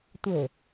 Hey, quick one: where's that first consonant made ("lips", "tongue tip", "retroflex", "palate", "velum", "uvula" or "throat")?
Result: tongue tip